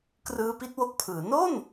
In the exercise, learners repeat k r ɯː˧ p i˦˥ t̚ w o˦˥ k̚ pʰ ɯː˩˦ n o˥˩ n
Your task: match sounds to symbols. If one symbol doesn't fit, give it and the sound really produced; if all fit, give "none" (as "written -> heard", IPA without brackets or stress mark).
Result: i˦˥ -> i˥˩